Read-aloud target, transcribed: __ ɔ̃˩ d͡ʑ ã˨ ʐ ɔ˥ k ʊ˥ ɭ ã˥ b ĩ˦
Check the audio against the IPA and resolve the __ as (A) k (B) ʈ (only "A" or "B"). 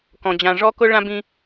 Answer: A